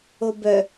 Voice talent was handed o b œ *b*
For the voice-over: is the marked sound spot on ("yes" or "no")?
no